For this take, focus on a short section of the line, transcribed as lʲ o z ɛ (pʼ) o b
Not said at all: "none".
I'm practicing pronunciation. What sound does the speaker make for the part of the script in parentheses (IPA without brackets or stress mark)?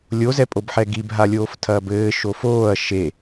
pʼ